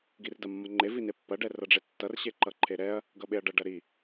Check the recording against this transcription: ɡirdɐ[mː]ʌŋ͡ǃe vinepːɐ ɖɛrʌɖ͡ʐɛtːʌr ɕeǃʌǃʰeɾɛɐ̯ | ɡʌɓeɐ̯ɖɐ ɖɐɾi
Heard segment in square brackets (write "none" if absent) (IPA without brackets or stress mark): mː